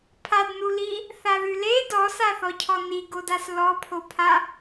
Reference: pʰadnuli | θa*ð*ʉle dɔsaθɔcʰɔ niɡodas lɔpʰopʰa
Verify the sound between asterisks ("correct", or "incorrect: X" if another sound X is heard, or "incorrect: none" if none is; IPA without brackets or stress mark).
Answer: correct